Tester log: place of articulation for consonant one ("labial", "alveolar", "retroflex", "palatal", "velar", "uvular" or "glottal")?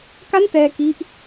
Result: velar